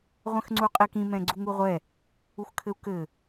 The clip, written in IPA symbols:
ʁʷ ɛ̃ x ŋ͡ǀ u qʼ i k ĩ m ɛ̃ ɡ͡ǀ u ŋ u ʁʷ ɛ | u x kʰ ɘ u̯ k ɘ

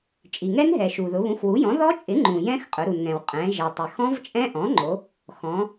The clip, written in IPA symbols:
t͡ʃʼ i˩ ŋ ɛ˦˥ n ɦ ɛ˩ ʃ u˩ ð ʊ˩˧ β ũ˩˥ x w u˩˥ j ɔ̃˩˥ ð ɔ˦˥ t͡ʃʼ ɪ˩˥ ŋ͡ǃ ũ˩ j ɛ̃˦˥ x qʼ ʊ˩˧ ɾ u˩ n ŋ ɛ̃˩ w qʼ ɛ̃˩˧ ʒ ɛ˩ tˤ ɪ˩ x ɔ̃˦˥ v t͡ʃʼ ɛ̃˦˥ ʔ ɔ̃˩˥ ŋ͡ǃ o˩˧ | x ɔ̃˩˧

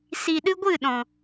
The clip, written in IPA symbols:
s i˨ ɗ ɨ˧ ɡʷ ɨ˦˨ ɗ ɔ̃˨

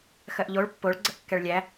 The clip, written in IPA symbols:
x ɜ ʔ ʎ o ɭ pː o ɭ ɡ͡ǀ ə ʔ kː ɛ ɭ lʲ æ

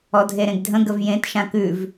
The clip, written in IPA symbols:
ɔ dʱ e ɾ ẽ ɡ dʱ ə̃ ɡ ə v j ẽ t ʃ ã k ʉ v

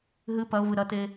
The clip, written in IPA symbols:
ɦ ɨ p ɐ o̯ v ɨ ɾ ɐ t e

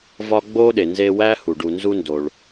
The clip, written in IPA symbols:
v ɒ˦ ɡ͡b o˥ ɗ e˩ n z e˦ w æ˥ h u˩ ɖ u˨ n z u˦ n d o˩ ɭ

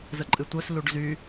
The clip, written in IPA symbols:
z ə ǃʼ ɨ tʷ œ s l u ɖ z y

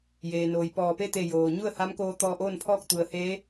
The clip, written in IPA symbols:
j eː˩ n oː˩ j p ɔː˧˩ p e˥˨ t̪ e˧˩ j oː˩ ɲ u˥˨ ə̯ h a˧˥ m k oː˧ t̪ ɔː˧ ʔ oː˥˨ n pʰ ɔː˥˨ k̚ t̪ u˩˧ ə̯ h eː˧˥

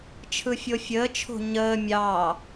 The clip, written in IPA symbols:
t͡ʃʰ ɯ fʲ o fʲ əː t͡ʃʰ o̤ ɲ əː mʲ ɑ

